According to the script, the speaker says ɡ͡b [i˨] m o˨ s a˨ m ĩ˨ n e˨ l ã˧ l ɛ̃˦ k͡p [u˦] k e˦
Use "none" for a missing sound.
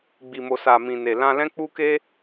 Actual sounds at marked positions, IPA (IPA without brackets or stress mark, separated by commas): i˨, u˦